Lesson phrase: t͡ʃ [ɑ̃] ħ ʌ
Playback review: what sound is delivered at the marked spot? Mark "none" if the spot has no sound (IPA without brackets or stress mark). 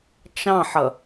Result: ɑ̃